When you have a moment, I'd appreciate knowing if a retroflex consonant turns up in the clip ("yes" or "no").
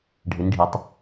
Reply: yes